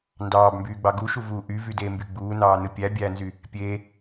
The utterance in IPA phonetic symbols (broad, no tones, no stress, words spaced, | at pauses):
ndɑːbmbyːɡ͡bɑ ɡuʃuvuː ʔyvydeːmby ɡ͡buːnɑːnɯ pʲæbʲæːnzy | pʲe